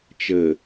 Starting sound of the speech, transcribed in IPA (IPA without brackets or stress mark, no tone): t͡ʃ